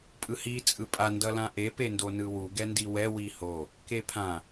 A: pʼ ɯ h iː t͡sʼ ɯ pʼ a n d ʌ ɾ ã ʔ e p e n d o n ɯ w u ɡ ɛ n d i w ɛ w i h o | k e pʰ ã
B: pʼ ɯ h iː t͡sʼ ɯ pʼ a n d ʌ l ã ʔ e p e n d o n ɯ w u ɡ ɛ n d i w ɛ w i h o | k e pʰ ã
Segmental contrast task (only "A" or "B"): B